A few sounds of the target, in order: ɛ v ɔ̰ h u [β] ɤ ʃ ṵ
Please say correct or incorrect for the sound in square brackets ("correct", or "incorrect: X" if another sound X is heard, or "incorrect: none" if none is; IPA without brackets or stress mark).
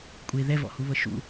correct